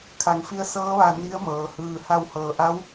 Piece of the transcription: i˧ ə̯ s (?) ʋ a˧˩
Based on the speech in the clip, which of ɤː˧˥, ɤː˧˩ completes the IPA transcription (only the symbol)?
ɤː˧˥